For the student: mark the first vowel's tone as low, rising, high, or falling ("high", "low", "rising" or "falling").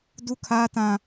high